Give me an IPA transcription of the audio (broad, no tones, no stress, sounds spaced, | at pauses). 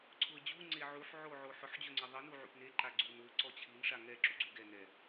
ǀʰ ʊ ə̯ d͡ʑ u ŋ͡ǀ e ʕ u ħ ʕ o ʕ o ħ ʊ ħ d͡ʑ ʊ ŋ͡ǀ e ðˤ i n u ʕ ṵ p n e ǃ a ɡ͡ǀ u n ʊ ǀ ɔ t͡ɕʰ i n ʂ a ŋ ɛ ǁ ṵ ɡ͡ǀ u ɡ ɛ n ɛ